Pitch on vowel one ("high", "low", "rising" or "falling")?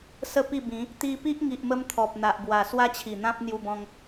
falling